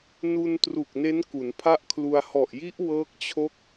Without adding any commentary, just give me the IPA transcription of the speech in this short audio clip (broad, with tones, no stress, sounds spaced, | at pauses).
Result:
n u˧ n t r u˨˩ k̚ n e˦˥ n k u˩˦ n pʰ a˥˩ ʔ kʰ l u˧ a̯ h ɔ˨˩ ʔ j i˦˥ ʔ w ɤː˦˥ k̚ t͡ɕʰ o˦˥ k̚